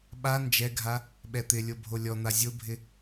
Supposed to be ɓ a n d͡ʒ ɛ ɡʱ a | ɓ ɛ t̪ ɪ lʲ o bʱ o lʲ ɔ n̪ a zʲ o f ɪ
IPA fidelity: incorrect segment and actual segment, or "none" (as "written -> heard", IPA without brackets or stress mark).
f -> bʱ